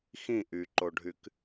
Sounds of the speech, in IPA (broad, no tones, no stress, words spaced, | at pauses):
xĩ ʔyǃoɖʱyk